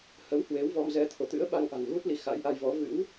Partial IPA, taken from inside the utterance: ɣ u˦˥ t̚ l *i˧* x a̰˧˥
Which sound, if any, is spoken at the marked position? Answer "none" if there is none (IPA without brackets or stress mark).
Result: i˧